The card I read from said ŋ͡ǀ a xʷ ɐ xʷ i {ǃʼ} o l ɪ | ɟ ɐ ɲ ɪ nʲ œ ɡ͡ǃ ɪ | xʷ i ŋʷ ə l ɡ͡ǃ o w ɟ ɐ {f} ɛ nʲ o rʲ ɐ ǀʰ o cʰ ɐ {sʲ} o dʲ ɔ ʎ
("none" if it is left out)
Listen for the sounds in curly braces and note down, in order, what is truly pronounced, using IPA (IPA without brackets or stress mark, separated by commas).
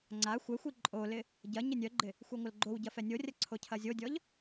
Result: ǃʼ, f, zʲ